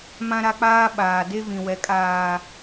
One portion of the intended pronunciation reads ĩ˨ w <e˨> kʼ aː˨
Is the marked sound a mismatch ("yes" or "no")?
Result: yes